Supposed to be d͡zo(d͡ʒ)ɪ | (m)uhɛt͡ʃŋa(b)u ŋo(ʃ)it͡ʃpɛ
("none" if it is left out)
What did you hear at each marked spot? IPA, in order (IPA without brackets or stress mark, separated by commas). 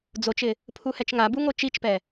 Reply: t͡ʃ, pʰ, b, t͡ʃ